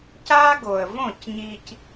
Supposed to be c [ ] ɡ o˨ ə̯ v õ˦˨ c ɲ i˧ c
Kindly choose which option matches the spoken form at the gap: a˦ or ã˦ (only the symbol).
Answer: a˦